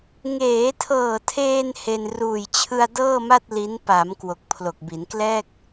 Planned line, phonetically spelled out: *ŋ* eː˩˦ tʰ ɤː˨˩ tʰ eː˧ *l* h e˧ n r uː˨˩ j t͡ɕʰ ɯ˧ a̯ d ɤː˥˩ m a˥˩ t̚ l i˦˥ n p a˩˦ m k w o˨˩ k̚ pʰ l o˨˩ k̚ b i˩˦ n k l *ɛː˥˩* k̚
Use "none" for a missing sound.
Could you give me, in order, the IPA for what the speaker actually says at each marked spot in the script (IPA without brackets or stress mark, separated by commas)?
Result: ŋ, n, ɛː˥˩